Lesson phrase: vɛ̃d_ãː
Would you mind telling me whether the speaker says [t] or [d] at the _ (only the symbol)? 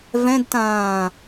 t